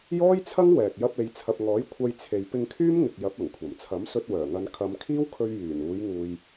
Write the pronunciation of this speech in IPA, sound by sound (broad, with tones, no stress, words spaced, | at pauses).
jɔː˥jt͡sʰɐ˥ŋ wɛː˨k̚ jɐ˧p̚e˨jt͡sʰɐ˨p̚ŋɔː˨˥j kʷʰɐ˧jt͡sʰe˨j pɪ˧ŋkʰyː˥mŋɪ˨k̚ jɐ˨˥p̚ɐ˨˩ŋkʷʰɐ˨˩m t͡sʰɐ˨˥msɵ˧t̚ wœː˨˩ŋɐ˨˧n kʰɐ˨˧mkʰiː˥wkʰɵ˧ɥ jyː˨˩n uː˨˧j ŋuː˧j